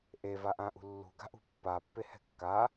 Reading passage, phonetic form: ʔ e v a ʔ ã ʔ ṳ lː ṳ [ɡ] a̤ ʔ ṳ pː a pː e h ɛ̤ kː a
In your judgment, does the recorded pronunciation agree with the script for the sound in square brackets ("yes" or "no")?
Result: yes